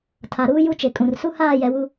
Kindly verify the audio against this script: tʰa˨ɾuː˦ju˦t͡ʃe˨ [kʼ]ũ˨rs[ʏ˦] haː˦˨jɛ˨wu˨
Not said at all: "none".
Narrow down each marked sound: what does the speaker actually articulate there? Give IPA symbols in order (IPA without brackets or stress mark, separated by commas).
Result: kʼ, u˦